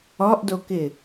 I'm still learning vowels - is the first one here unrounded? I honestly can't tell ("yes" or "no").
no